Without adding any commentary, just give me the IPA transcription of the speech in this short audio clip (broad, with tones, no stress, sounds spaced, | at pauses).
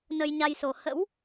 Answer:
n ə˧ j ɲ a˧ j s o˨˩ h ə̰˧˥ w